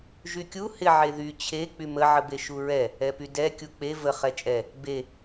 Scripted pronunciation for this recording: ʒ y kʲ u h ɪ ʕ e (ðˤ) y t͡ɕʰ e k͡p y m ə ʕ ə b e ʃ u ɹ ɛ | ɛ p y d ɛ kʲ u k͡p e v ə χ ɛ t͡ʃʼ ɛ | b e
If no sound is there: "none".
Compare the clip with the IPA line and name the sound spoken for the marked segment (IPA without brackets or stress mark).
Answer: ð